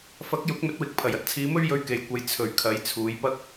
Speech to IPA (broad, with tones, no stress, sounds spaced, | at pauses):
f ɐ˨˥ k̚ j ʊ˨˥ k̚ m ɵ˨˥ t̚ w ɪ˨ k̚ pʰ ɐ˨˩ j ɐ˧ t̚ t͡sʰ iː˨˧ m ɵ˥ ɥ j ɵ˧ ɥ k e˨ j kʷ ɐ˨˧ j t͡sʰ ɵ˨˩ ɥ kʰ ɐ˨˧ j t͡sʰ uː˨˧ j p ɐ˥ k̚